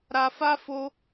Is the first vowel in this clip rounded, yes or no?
no